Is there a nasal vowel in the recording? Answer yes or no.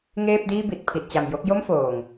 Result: no